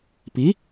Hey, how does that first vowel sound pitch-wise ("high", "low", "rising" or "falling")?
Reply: rising